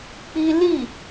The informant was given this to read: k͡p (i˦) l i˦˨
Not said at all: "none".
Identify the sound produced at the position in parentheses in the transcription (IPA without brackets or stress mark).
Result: i˦